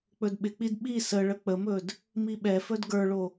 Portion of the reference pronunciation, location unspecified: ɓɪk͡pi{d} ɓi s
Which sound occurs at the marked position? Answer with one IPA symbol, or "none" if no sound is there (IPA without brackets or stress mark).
d